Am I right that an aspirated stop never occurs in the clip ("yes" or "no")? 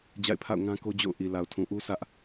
no